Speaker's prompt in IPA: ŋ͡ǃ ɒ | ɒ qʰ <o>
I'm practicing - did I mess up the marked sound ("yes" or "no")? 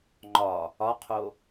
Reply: no